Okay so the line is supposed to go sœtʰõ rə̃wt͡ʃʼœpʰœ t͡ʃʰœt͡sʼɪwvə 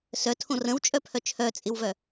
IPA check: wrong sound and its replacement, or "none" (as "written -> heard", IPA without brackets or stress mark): ə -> œ